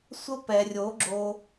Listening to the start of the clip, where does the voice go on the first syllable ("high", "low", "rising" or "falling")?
high